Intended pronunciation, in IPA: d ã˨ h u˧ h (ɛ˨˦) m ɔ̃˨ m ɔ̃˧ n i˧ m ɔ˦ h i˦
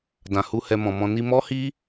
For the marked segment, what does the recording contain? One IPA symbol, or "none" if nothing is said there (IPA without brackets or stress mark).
ɛ˧